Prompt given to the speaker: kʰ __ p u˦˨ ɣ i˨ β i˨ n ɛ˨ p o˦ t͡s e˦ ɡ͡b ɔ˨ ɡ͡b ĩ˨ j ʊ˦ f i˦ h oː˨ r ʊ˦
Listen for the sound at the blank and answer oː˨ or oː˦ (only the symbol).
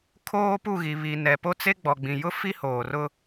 oː˦